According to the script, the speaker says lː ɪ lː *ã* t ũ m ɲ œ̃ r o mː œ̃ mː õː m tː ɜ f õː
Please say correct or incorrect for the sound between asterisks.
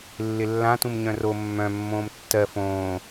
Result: correct